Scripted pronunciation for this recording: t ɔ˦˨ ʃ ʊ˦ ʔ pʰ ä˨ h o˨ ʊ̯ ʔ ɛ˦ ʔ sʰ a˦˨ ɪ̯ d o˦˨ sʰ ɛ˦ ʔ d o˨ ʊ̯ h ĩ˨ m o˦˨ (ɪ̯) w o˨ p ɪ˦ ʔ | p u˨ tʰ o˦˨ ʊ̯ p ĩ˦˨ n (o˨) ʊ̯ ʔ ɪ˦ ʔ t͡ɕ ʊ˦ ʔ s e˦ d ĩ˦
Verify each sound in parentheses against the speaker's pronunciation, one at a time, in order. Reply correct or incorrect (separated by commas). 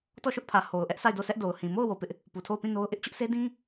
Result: incorrect, incorrect